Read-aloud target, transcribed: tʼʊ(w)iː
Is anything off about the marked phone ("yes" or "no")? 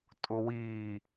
no